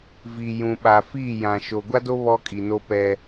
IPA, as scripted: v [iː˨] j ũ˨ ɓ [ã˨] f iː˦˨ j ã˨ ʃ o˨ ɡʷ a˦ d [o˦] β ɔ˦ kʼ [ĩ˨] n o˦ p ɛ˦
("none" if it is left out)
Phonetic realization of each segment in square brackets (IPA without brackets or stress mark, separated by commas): i˨, a˨, o˦, i˨